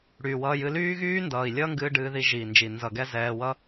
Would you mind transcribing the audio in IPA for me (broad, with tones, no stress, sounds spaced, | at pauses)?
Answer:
ɽ yː˨ w ʌː˧ j ɨ˧ l yː˦ ɣ yː˦ n d ʌː˨ i̯ lʲ ʌː˦ ŋ ɡ ɨː˧ ɖ ɨː˧ ð i˧ ʒ iː˨ n d͡ʒ i˨ n z ʌ˨ ɡ ɛ˧ z ɛː˧ w ʌ˦